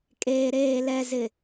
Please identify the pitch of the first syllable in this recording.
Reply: low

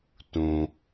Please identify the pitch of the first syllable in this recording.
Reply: low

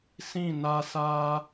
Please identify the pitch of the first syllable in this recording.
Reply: falling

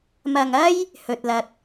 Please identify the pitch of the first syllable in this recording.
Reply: low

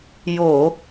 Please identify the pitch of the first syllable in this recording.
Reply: low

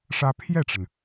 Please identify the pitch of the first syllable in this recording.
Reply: high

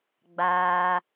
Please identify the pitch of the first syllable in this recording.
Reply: low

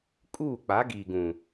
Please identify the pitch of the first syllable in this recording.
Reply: falling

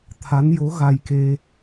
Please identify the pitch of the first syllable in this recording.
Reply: rising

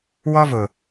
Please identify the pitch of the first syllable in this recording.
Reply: high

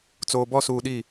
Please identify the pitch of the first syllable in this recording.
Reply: low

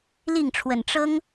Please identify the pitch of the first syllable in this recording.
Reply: falling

